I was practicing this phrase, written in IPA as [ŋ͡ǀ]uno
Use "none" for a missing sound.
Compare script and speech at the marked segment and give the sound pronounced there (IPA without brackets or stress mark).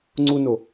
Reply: ŋ͡ǀ